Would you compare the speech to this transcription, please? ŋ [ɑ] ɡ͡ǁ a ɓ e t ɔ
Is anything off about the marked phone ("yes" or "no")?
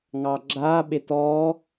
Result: no